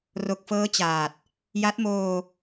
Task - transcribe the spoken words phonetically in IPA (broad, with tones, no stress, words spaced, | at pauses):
ro˨˩k̚fɤː˦˥ t͡ɕaː˨˩t̚ | ja˦˥t̚moː˧